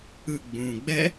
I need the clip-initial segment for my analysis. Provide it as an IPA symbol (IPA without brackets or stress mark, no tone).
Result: ɯ